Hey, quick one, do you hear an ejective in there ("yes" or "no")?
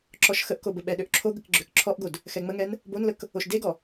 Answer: no